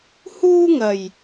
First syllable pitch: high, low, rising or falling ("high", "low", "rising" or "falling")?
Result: high